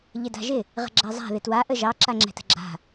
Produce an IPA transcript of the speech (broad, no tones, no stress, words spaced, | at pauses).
ʎɪda̤ʒɪ | ʁə̤ɡ͡ǁazˤa̤ ðɪtwa ʔəʒɑ ǁaŋ͡ǁɛ̤tə̤ɡ͡ǁa̤